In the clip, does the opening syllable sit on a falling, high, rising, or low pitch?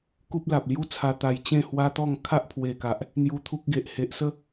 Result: high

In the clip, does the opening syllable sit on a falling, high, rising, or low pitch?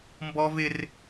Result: high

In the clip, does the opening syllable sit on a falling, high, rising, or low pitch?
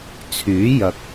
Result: rising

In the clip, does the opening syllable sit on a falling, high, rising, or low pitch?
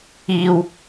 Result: low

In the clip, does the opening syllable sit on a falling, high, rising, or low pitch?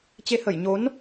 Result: rising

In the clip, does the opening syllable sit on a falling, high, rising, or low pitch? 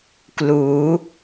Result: rising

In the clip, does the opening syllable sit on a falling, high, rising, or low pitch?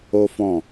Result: high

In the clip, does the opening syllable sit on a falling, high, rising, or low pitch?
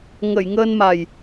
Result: low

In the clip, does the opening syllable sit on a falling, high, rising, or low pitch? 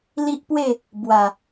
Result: high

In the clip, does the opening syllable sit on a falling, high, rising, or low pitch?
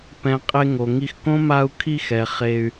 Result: low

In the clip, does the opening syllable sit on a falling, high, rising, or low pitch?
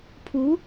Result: rising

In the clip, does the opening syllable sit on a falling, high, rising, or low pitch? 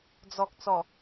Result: low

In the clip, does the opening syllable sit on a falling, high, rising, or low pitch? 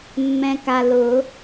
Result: low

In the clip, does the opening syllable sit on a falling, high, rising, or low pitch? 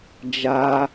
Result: high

